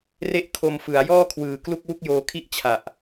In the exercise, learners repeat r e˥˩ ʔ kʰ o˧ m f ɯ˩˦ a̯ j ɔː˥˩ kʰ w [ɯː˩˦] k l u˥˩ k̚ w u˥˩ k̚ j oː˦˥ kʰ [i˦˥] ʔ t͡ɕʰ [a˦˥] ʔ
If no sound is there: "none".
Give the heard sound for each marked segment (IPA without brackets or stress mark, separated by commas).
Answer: ɯː˨˩, i˥˩, a˨˩